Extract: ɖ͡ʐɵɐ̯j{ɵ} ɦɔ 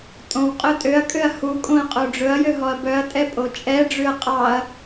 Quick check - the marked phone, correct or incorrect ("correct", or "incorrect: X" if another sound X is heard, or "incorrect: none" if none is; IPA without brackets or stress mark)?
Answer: incorrect: ø